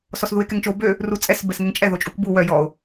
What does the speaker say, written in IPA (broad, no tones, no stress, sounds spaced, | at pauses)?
s ɔ s ð u e̯ k ɛ ŋ t͡ʃ o b ø | r u t͡sʼ ɛ s b ɛ s ŋ ɛ ŋ t͡ʃʼ ɛ ð o t͡ʃʼ u k b u w œ j ɔ o̯